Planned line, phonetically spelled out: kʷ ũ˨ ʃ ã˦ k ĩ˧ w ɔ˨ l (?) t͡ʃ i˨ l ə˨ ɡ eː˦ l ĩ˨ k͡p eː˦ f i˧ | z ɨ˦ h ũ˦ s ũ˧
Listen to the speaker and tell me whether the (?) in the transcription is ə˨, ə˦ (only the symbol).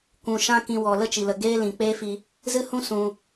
ə˦